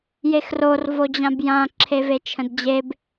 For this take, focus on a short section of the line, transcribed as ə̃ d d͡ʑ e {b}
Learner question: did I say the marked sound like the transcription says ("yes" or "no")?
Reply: yes